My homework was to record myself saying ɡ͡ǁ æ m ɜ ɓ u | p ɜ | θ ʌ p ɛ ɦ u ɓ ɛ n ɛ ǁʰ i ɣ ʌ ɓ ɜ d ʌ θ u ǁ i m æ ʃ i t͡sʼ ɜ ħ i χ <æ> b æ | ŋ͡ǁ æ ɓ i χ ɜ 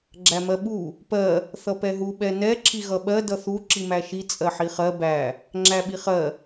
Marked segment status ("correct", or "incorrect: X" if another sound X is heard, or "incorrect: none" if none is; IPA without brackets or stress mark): incorrect: ɜ